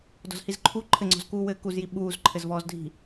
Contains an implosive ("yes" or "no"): yes